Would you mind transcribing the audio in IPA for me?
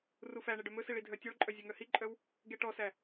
r u f æ ɳ e ɖ œ m ɵ s i ɭ i dʱ œ tʲ ɔ ɭ ǃʼ œ zʲ ɵ ŋ œ h i ǃʼ œ w | ɡ e ʈ ɔ s æ

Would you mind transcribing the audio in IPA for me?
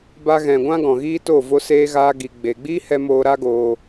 b a˧ ɣ ɛ̃˨ ɡʷ ã˦ ɡ ɔ̃˨ ɣ iː˦ t o˦˨ v o˦ s eː˦ ɣ aː˦ ɡ i˧ ɡ͡b e˧ ɡ͡b iː˦ h ɛ˧ m oː˧ ɾ a˦ ɡ oː˧

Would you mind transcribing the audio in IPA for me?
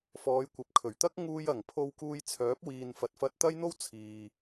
f ɔː˨˧ j kʷ ɐ˨˥ p̚ kʰ ɵ˨˩ ɥ t̪ ɐ˥ k̚ ŋ uː˧ j ɐ˨˩ ŋ pʰ o˧ w k uː˧ j t͡sʰ œː˨˥ p̚ w iː˨ n f ɐ˨ t̚ f ɐ˧ t̚ t̪ ɐ˥ j n̪ o˥ w t͡sʰ iː˨

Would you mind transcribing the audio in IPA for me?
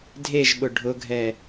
dʱ e ʒ ɓ ʊ ɖʱ ʊ ɡʱ ɛ

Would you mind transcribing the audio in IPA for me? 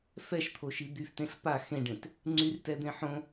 f ɛ ʃ t̪ʰ o ʃ i d̪ y f t ẽ ɬ p a x ẽ ɖ ẽ t | ŋ͡ǀ y r t ɛ d̪ ẽ ħ õ

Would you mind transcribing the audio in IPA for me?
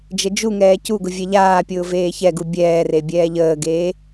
d͡ʒ ə d͡ʒ u ŋ ɛː c u ɡ ʊ vʲ ɛ ʎ aː pʲ ʊː v eː ç ɛ ɡ u bʲ ɛː r e bʲ ɛː ʎ əː ɡ eː

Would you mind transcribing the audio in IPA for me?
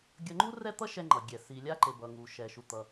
ɡʲ ʌ˧ ŋ͡ǃ u˥ r ɛ˥ t̪ ʌ˥ ʃ ɛ˧ ŋ͡ǃ ʌ˩ ɡʲ ɛ˩ s i˩ lʲ a˧ ǃ e˩ b ʌ˩ ŋ u˩ ʃ ɛ˩ ʃ u˩ t̪ ʌ˩

